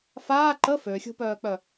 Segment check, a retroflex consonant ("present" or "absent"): absent